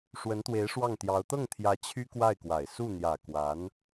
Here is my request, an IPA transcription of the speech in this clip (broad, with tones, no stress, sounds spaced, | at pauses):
ʂ w ə˧˥ n t̪ w e˧˥ ɪ̯ ʂ w ɑ˥˩ ŋ t̪ j ɑ˧˥ ʊ̯ t̪ ɤ˥˩ ŋ t̪ʰ j ä˧˥ t͡ɕʰ y˥ k w a˥˩ ɪ̯ k w a˨˩ ɪ̯ s u˥˩ n̪ j ä˨˩ k w a˧˥ n